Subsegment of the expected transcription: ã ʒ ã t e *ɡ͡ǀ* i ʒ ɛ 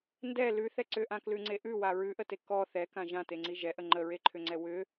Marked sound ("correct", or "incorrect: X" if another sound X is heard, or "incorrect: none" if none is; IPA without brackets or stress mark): incorrect: ŋ͡ǀ